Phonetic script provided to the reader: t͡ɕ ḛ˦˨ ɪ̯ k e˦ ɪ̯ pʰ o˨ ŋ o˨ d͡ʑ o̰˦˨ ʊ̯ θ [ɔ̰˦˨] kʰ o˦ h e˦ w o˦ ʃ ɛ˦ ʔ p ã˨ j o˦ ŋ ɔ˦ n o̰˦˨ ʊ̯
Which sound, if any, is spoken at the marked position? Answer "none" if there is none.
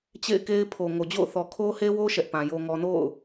ɔ˨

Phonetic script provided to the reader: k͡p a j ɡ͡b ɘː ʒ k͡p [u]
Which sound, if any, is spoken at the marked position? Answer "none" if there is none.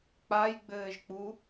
u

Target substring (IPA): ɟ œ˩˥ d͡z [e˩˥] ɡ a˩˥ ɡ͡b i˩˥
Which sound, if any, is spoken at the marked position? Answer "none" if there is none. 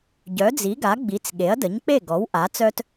i˩˥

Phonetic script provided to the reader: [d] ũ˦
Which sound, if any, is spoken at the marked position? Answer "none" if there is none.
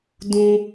d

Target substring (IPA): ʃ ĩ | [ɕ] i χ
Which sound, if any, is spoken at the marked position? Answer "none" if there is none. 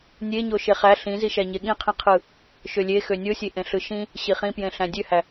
ɕ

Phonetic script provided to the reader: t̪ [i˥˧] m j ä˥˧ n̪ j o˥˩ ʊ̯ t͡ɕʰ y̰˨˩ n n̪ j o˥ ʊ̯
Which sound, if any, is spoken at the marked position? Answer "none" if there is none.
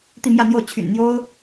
i˥˧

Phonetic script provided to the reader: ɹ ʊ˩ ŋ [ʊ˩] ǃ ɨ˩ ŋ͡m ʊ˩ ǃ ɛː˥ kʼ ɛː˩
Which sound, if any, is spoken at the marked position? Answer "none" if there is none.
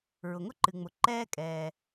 ʊ˥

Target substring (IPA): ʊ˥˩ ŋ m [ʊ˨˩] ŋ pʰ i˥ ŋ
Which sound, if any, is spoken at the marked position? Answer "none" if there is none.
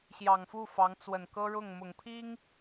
ʊ˨˩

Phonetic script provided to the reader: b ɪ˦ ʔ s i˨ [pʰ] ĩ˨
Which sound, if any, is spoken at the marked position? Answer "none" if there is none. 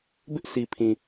pʰ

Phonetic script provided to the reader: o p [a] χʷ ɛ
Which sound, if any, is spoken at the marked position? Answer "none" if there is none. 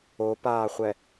aː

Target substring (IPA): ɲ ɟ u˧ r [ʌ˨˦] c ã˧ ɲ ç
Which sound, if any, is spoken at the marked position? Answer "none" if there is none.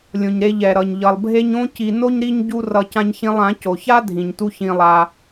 ʌ˧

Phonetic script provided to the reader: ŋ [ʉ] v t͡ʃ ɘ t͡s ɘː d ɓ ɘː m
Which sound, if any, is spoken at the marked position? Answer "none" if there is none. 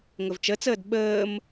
ɘ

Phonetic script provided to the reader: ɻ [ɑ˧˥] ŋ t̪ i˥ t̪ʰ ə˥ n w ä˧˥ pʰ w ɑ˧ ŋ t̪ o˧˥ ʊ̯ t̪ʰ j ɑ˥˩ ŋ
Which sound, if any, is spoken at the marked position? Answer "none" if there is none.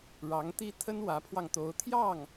ɑ˧˥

